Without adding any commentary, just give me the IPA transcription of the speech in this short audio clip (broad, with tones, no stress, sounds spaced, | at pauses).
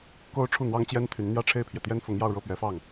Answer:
k o˥ ʊ̯ ʈ͡ʂʰ u˥˩ n̪ w ɑ˥ ŋ t͡ɕ j ɛ˥ n t̪ʰ y˧˥ n n̪ j ä˥˧ ʈ͡ʂʰ e˥˩ ɪ̯ pʰ j ɛ˩ t̪ j ɛ˥ n f ʊ˧˥ ŋ j ɑ˥˧ ʊ̯ ɻ ɤ˥˩ p ɥ ɛ˧˥ f ɑ˥˩ ŋ